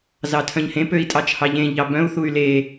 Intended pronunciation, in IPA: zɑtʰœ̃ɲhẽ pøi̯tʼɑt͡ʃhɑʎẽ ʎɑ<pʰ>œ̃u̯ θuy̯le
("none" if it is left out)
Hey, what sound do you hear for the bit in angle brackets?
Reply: b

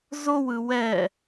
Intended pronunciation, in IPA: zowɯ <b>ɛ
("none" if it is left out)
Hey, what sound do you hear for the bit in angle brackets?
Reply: w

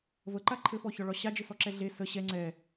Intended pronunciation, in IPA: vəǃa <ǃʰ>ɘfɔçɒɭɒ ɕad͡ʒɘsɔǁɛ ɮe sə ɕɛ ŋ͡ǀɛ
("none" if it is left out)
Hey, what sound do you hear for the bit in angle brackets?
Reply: ǃʰ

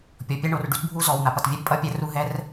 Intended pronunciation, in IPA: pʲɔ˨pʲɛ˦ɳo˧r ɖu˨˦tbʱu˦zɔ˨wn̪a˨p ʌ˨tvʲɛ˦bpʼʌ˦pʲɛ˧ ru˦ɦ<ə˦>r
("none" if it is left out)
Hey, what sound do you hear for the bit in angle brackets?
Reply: ɛ˦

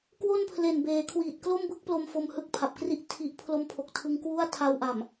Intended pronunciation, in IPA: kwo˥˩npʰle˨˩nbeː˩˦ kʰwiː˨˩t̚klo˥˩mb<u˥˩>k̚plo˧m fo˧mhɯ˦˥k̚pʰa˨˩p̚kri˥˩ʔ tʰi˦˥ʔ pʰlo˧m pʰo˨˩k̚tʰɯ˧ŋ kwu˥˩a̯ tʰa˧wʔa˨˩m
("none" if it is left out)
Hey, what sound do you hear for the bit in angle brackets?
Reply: ɯ˥˩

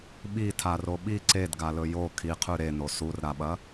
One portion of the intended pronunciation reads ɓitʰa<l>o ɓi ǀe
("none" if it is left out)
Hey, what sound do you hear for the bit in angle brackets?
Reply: r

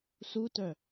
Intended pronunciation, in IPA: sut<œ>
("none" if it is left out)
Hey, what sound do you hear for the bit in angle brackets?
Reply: œ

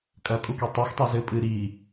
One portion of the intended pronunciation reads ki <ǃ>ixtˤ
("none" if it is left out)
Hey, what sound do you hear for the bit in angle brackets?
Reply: tˤ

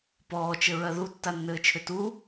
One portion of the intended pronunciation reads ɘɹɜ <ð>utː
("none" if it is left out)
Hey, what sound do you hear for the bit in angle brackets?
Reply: ð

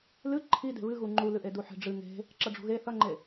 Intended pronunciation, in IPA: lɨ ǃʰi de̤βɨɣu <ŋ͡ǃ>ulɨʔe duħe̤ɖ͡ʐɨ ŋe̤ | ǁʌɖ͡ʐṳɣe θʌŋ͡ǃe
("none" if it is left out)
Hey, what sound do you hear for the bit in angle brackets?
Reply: ŋ͡ǃ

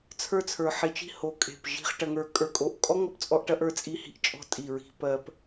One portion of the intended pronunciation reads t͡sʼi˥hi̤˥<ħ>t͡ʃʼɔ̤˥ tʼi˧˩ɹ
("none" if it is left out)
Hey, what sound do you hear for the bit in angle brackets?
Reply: ʔ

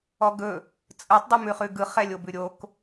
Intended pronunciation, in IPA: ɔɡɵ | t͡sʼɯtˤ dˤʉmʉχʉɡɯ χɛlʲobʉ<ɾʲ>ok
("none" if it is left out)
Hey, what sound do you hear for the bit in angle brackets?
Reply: ɾʲ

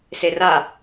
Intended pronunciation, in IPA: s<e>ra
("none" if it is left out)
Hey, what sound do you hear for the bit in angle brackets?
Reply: e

